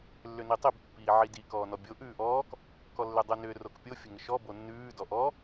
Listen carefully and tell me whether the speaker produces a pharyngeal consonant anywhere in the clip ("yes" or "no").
yes